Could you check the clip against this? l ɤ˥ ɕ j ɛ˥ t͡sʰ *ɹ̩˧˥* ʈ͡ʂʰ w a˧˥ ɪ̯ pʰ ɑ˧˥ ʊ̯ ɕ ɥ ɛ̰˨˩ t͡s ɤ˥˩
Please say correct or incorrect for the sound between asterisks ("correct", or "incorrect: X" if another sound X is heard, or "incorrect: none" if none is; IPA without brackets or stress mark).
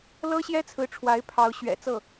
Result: correct